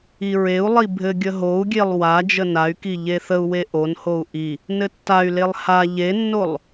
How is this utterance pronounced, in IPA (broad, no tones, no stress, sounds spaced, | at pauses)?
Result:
i ɹ e u̯ lˠ i bʱ ɘ ɡʲ ə ɦ o u̯ ɡʲ e lˠ w a d͡ʒ ə n a y̯ k i ʎ e θ ə u̯ w e ʔ o n h o u̯ ʔ i | n ɘ tː a y̯ l e lˠ h a ʎ e nː o lˠ